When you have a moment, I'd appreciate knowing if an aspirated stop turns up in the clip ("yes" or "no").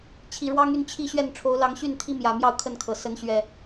yes